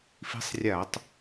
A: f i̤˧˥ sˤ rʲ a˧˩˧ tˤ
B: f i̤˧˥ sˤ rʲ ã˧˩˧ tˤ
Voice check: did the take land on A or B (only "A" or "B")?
A